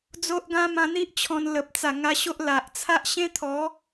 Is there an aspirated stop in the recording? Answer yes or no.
yes